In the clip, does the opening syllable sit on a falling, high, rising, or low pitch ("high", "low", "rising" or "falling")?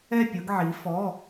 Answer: falling